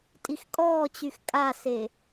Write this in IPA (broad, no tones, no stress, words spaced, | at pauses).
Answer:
tʼixkʼɔːt͡ɕyx kʼase